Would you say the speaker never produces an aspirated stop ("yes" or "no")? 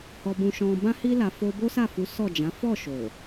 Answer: yes